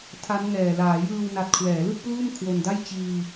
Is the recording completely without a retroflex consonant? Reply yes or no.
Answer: yes